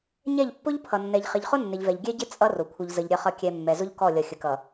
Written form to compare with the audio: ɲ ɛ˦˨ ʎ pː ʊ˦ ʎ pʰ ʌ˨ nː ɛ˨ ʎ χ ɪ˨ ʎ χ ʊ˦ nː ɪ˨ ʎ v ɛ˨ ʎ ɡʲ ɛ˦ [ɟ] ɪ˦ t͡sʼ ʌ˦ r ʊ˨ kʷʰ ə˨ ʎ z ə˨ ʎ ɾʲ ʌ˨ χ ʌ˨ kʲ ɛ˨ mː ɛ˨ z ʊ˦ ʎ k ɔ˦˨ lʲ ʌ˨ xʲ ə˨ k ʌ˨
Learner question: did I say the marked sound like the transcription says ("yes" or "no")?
yes